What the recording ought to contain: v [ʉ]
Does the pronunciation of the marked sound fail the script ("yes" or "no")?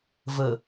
yes